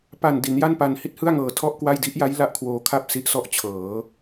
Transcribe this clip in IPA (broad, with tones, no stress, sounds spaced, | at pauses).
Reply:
p a˨˩ n d i˩˦ n j a˥˩ n p a˧ n h i˥˩ t̚ h ɯ˥˩ a̯ ŋ ɤː˨˩ tʰ ɔ˥˩ ʔ k w a˥˩ j d i˦˥ ʔ j a˦˥ j l a˥˩ ʔ kʰ w oː˧ kʰ a˥˩ p̚ s i˦˥ ʔ s ɔ˥˩ ʔ t͡ɕʰ ɤː˩˦